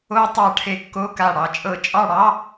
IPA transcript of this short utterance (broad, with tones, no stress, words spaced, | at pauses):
o˧ tˤɑ˧ʈʰe˧˩kːo˧˥˧ka˧˩ ɽɑ˩˧˩t͡ʃʼɤ˧˩t͡ʃʼɑ˥˧ ɽɑ˧˥˧